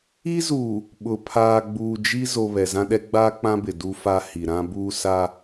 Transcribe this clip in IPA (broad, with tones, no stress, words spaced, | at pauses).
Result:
i˦zuː˨ | ɓʊ˨ pʰaː˨ɡ͡buː˨ d͡ʒi˦ zo˨ βɛ˨zã˦ɗɛ˦ ɡ͡baː˦k͡pã˦bɪ˨ du˦fa˦ hi˨ɾã˦buː˦ sa˦